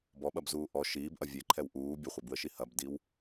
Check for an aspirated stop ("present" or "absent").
present